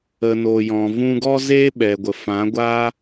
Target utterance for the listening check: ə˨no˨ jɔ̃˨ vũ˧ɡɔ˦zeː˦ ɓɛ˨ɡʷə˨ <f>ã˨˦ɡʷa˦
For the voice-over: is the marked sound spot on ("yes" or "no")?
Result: yes